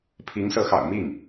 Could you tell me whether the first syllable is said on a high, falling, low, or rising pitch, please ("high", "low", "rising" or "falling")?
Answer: rising